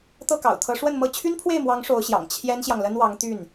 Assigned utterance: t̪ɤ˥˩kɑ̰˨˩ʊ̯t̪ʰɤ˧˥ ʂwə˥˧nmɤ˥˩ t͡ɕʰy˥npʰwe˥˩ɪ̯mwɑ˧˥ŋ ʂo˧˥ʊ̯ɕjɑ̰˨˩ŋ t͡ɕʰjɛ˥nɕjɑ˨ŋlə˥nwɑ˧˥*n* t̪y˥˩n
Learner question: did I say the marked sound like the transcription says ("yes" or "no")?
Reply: no